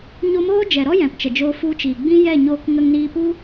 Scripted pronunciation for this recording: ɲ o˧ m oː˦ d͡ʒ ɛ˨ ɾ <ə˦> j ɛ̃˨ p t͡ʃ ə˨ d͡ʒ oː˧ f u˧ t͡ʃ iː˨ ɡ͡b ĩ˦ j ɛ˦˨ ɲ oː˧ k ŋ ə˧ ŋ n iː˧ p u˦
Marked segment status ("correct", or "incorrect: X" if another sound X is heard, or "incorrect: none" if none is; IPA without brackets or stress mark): incorrect: ɔ˦